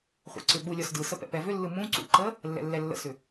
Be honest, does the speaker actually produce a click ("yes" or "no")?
yes